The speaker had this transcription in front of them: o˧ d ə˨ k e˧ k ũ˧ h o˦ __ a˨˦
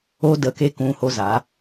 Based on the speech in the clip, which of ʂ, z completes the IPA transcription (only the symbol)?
z